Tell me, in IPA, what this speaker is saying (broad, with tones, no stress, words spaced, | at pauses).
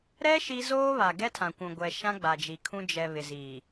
ɾɛ˦ ʃi˦ zoː˦βa˨ ɡɛ˦tʰã˨kʷũ˨ɡʷɛ˨ ʃã˦ɡ͡ba˨d͡ʒi˨ kʰũ˦ d͡ʒɛ˨ βɪ˨ziː˨